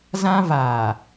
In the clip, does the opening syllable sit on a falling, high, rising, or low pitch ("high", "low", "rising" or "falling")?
high